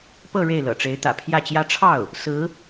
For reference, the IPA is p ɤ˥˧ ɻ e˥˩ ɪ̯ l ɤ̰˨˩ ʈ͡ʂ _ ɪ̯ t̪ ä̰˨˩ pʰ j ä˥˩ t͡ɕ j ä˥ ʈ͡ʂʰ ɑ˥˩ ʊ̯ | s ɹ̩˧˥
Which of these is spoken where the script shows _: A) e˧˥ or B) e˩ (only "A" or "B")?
A